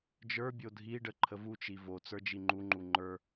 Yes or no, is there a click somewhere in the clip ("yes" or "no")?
yes